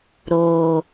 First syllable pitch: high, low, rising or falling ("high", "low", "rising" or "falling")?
low